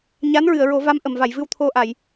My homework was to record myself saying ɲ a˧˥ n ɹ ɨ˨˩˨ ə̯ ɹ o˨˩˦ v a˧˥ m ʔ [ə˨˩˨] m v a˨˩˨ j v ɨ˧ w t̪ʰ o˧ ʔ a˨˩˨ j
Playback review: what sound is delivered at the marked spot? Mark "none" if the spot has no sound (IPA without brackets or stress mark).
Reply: ə˨˩˨